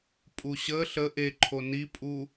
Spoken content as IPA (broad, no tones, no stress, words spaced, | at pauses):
pʼuɕə ɬə ʔeǃʰo nipʼu